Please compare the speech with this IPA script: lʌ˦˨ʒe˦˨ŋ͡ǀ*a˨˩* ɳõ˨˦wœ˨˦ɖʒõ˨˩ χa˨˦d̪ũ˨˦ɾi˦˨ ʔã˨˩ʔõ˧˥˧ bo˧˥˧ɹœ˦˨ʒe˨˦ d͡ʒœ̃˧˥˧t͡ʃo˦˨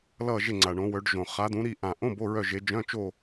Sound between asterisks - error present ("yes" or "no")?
no